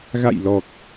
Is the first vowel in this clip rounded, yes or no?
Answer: no